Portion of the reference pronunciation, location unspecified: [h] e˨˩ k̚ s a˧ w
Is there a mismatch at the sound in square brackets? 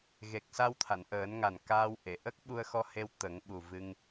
yes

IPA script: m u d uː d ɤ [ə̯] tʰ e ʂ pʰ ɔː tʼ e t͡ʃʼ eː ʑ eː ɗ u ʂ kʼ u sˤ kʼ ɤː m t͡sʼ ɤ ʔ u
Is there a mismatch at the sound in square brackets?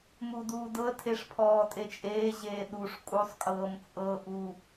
no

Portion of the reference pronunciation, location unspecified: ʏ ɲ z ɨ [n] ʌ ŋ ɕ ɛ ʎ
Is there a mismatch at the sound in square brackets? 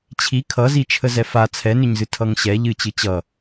yes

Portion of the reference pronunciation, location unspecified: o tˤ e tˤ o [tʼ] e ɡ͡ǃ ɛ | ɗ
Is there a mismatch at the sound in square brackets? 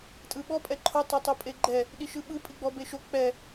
yes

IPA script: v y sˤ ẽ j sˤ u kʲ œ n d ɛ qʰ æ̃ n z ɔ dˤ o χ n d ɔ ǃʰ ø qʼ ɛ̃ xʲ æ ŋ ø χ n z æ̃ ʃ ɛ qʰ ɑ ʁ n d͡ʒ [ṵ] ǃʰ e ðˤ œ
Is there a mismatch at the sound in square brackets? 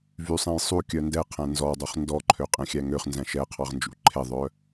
no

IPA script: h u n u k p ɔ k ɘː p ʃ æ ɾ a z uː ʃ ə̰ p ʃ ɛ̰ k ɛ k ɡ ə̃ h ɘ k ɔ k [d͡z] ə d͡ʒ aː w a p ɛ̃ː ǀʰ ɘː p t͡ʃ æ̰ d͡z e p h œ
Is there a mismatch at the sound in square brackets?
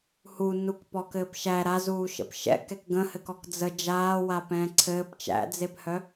no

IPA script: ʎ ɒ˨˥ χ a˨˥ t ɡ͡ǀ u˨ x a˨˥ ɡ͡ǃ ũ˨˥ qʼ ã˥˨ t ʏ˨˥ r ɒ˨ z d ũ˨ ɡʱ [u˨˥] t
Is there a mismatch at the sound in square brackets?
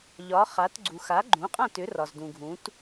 yes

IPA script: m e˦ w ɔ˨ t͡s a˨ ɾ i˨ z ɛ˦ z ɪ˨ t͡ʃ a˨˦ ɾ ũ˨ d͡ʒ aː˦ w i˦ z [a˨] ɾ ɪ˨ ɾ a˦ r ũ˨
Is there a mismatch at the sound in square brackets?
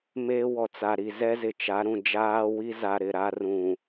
no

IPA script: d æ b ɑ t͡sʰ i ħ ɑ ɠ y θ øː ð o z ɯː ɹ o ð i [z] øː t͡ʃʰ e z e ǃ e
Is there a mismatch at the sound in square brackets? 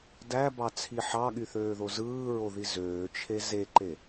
no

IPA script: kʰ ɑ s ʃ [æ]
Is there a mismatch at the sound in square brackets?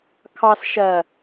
yes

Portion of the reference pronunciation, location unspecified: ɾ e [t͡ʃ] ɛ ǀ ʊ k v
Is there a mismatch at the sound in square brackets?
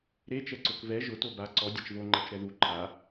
no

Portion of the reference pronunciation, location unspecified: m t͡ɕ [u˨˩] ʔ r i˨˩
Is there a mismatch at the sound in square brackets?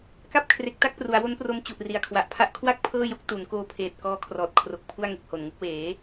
no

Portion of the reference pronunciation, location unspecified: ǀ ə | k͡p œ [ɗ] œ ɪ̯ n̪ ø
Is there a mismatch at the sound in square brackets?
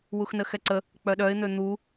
no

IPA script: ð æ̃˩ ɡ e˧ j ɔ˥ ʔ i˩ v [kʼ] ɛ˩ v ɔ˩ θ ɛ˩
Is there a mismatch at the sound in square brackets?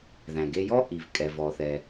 no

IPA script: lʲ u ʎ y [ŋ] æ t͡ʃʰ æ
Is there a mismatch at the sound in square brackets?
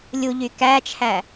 yes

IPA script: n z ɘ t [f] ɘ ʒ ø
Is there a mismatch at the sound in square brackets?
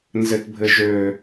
yes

